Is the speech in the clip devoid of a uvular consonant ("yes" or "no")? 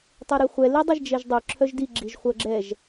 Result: no